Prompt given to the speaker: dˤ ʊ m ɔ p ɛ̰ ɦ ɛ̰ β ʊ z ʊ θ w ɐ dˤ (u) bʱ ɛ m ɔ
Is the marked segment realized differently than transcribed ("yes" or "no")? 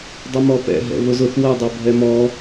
yes